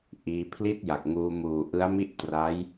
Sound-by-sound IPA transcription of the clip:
ʔ iː˧ pʰ l i˥˩ t̚ j a˨˩ k̚ ŋ uː˧ m uː˨˩ ʔ ɯ˦˥ a̯ m i˥˩ ʔ t r a˦˥ j

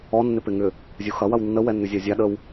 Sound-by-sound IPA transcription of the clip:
ɔ nː ɪ p ɪ ŋ ʏ | zʲ u x ɐ w ɐ w nː ə w ɛ nː ʏ zʲ a zʲ a ɗ ə w

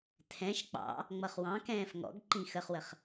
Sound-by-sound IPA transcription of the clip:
tʰ ɛ̃ ʃ k͡p ɑ̰ | ŋ͡m ʌ χ w ɑ̃ k ɛ̃ː f ŋ ɔ̰ ɡ ǃ ĩ x ə χ w ə χ

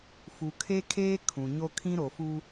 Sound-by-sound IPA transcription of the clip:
f u˨ kʰ e˦ kʰ eː˦ kʰ ũ˨ ɲ o˦ kʰ ĩ˦ ɾ o˨ f u˦

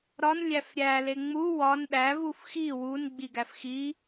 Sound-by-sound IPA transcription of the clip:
ɾ ɒ n lʲ æ f ɾʲ æ l e ŋ͡m u w ɒ n ɗ æ v u f x i w u n ɡ͡b i ɡ æ f x i

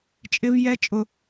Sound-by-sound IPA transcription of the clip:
t͡ʃʼ ɪ v j ɛ t͡ʃʼ ʊ

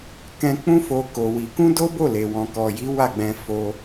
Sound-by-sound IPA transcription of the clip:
k ɛ̃˧ k͡p ũ˦ f o˧ k o˧ w i˧ k ũ˦ d o˦ b o˦˨ l e˨ w ɔ̃˨ k ɔ˨ j i˨˦ w a˦˨ ɡ͡b ɛ̃˧ f o˧

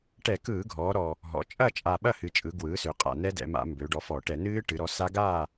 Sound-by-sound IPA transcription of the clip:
ʈ ɛ˧˩˧ k ɯː˧˩˧ ɡʱ ɔː˩˧ ɾ ɔ˨˩ | ɦ ɔ̰˩˧ t͡ʃʼ ɐ˦˨ t͡ʃʼ a˨˩ ɓ ɐ˦˨ h ɨ˨˩ t͡ʃʼ ɯ˩˧ ɡ w ɯː˩˥ s ø˩˧ qʼ a̰˨˩ n ɛ˦˥ d ɛ̰˩˧ m a̰˧˩˧ m b ø˩˧ ɖ ɔ˩˥ f ɔ˧˩˧ ʈ ɛ˧˩˧ n ɨː˦˥ ʈ ɨ˩˧ ɾ ɔ˩˥ s a˦˥ ɡ aː˦˨

